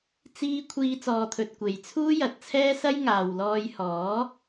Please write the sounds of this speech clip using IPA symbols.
t͡s iː˧ kʷʰ iː˧ t͡s ɔː˨ t̪ʰ ɵ˨ t̚ kʷ e˨ j t͡sʰ uː˥ j ɐ˨ t̚ t͡sʰ ɛː˥ s ɐ˥ j ŋ aː˨ w l ɔː˧ j h ɔː˨˥

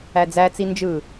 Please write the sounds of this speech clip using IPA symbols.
æ d͡z æ t͡s i n d͡ʒ ɯ

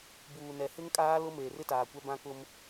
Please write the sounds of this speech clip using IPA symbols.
b uː˨ n ɛ˨ h ɪ˦ ŋ kʼ aː˦ l ʊ˦ m eː˨ r ɪ˦ t aː˨ kʷ ɛ˦ b ã˦ k ʊ˦ m

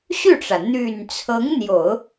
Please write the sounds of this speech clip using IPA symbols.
ɕ y˥˩ ʈ͡ʂ ä˩ n̪ y˨˩ n t͡sʰ ɤ˧˥ ŋ n̪ j o˨˩˦ ʊ̯

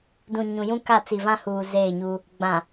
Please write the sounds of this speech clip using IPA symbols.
d ũ˨ ɲ ũ˨ j ũ˦ k a˦˨ t͡s i˨ v ã˦ h uː˨ z eː˦˨ ɲ u˦ | ɡ͡b ã˨

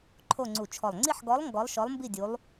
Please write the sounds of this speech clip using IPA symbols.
ǃʰ o˥˧ ŋ͡ǀ u˧˩ t͡ʃʰ ɔ˧˩ lˠ ŋ͡ǀ i˥˧ ħ ɡ ɔ˧˥ lˠ ŋ ɡ ɔ˧˥ lˠ ʃ ɔ˧˥ lˠ m b i˥˧ dʲ u˧˥ lˠ

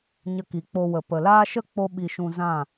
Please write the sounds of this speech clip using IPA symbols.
ɲ ə˧ k i˨ k͡p o˧ w ə˨ p ə˨ l aː˦ ʃ ə˦ k͡p o˦ ɓ i˧ ʃ ũ˧ z ã˦˨

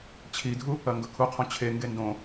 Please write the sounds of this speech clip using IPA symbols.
t͡ɕʰ i dʱ u | ɐ ŋ ɡ ɵ kʰ u qʰ õ t͡ɕʰ e ŋ ɡ e n d õ

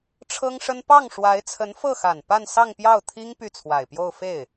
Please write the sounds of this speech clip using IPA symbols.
ʈ͡ʂʰ ɤ˥ ŋ ʂ ə˥ n p ɑ˥˩ ŋ ʂ w a˧˥ ɪ̯ t͡sʰ ə˧˥ n f ɤ˥˩ x a˨˩ n p a˥˧ n s ɑ˥˧ ŋ p j ɑ˥˩ ʊ̯ t̪ʰ i˥ ŋ p y˥˩ t͡sʰ w a˨˩ ɪ̯ p j o˥˧ ʊ̯ f e˥˩ ɪ̯

